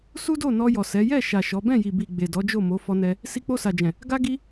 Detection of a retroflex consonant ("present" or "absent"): absent